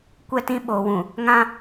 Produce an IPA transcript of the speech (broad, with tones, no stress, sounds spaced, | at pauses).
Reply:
kʷ ɛ˦˨ t ĩ˦ ɓ oː˨ w ũ˨ | ŋ ã˦